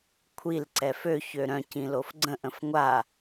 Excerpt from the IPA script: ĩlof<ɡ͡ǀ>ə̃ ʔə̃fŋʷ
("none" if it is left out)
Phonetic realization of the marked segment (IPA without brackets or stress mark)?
ɡ͡ǀ